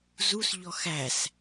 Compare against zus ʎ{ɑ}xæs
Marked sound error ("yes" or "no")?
yes